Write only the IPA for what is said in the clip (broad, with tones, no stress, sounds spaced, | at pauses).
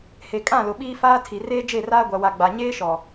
h e˨ kʼ ã˦˨ l ʊ˨ ɓ iː˦ f aː˦ tʰ i˨ r eː˦ d͡ʒ e˦˨ r aː˦ ɡʷ a˨ w a˨ ɡ͡b a˨ ɲ eː˦ ʃ ɔ˨